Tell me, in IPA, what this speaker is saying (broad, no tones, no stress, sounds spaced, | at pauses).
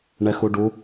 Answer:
ɳ ɛ x u ɖ u